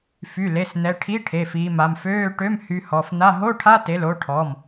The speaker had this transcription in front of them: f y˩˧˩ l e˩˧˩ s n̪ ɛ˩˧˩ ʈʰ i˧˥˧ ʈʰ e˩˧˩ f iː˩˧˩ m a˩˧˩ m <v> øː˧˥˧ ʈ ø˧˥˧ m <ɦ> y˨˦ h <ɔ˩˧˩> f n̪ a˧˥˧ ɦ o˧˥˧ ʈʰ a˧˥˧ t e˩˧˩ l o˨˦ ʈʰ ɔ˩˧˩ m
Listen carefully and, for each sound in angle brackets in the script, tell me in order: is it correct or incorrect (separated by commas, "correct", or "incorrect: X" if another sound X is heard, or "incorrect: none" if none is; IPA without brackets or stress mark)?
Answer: incorrect: f, incorrect: h, correct